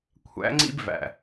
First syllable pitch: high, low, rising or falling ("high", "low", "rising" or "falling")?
rising